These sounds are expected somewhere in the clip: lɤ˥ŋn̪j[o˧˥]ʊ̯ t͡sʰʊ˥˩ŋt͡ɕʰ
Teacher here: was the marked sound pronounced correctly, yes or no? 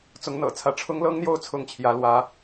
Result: no